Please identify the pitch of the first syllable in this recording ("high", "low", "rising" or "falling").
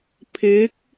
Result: rising